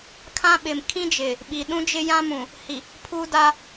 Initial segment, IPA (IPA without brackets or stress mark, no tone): kʰ